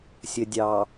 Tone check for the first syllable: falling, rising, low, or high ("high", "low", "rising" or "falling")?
low